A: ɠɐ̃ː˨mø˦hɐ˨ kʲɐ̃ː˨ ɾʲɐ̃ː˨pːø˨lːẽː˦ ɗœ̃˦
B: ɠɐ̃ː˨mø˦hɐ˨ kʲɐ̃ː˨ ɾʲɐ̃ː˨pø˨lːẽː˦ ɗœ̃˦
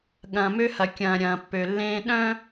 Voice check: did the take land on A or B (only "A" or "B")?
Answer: A